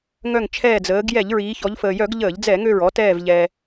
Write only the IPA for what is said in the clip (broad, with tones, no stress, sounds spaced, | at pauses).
ŋ œ˧˩ ŋ t͡ʃʰ ɛː˧˩ d͡z əː˩˧ ɡ j ɛ˧˩˧ ʎ ɹ iː˩˧ ç ɔ˩˧ ʎ f əː˩ j œ˧˩˧ ɡ ʎ əː˧˩˧ ʎ d͡z ɛ˧˩˧ ŋ ø˧˩ ɹ ɔ˩˧ t ɛː˧˩ v ʎ ɛː˩